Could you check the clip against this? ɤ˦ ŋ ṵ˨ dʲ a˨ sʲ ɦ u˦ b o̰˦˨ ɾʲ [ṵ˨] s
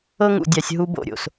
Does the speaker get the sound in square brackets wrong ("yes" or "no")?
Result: yes